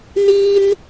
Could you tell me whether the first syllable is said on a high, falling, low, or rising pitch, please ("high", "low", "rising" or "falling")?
high